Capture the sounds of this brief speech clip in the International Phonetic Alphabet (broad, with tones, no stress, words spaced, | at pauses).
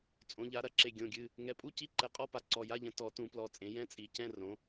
t͡sʼõ˨˦ʎa˨˦ ɾɐ˨˩˦ǁe˩˧˩ ɡʲõ˩˧˩ɡʲɨ˩˧˩ | ŋɛ˨˦pʼu˧˥˧ci˧˥˧ ǃɛ˨˦qʼɔ˧˥˧pa˨˦ ǀɔ˩˧˩ja˧˥˧ʎɐ̃˨˦ tɔ˨˩˦ tũ˨˩˦plɔ˩˧˩t͡sʼẽ˨˩˦ jɛ̃˧˥˧t͡sʼi˨˩˦ cɛ̃˧˥˧rõ˨˦